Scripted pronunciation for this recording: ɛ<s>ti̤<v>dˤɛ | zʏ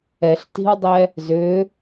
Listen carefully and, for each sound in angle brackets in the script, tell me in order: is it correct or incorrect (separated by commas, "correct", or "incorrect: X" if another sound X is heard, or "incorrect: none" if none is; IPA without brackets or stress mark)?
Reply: incorrect: ɬ, incorrect: w